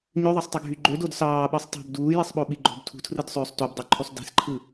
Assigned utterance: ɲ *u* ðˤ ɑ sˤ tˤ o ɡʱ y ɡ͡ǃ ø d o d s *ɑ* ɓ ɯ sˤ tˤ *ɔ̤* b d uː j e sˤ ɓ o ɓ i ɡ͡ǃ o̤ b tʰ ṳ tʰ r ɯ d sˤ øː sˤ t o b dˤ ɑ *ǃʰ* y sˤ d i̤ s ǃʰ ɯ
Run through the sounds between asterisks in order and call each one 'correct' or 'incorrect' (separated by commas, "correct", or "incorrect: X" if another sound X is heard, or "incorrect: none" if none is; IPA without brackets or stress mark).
incorrect: ø, incorrect: ɑː, incorrect: o̤, correct